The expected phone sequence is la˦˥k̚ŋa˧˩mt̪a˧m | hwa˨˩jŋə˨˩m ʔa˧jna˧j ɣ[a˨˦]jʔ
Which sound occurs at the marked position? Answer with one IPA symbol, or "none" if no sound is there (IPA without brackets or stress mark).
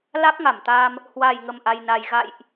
a̰˧˨